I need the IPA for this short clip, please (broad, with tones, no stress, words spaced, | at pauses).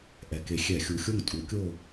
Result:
ʔɛ˩˧ke˨˩ xʲɛ˧˩˧xʲu˨˩xʲo˥˨ŋ tʼu˩˥kʲo˥˨